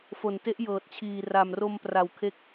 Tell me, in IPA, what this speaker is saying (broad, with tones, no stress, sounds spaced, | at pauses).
f o˨˩ n t e˦˥ ʔ j ɤː˨˩ t̚ t͡ɕʰ iː˨˩ r a˨˩ m r o˧ m p r a˨˩ w kʰ e˦˥ k̚